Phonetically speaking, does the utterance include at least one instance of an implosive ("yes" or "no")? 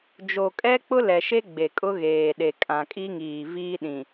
yes